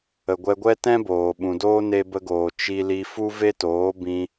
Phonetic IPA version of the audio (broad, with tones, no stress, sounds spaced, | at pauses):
ə˨ ɡʷ ɛ˧ ɡʷ ɛ˦ t ɛ̃˦ b oː˨ ɓ ũ˨ d oː˦ n e˧ b ə˧ ɡ oː˨ t͡ʃ i˧ l i˧ f u˦ v e˦ t oː˨˦ b ĩ˧